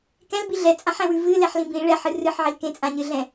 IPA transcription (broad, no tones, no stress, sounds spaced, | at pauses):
k ɛ̃ l b i ɮ ɛ t͡sʼ ã ħ ɛ̃ w ʉ v ɨ l ɛ ħ l ĩ b ĩ ɭ ɛ ħ ɨ r ɨ ħ ʕ i l k ẽ t͡sʼ ã ɲ ɨ ɮ ɛ̃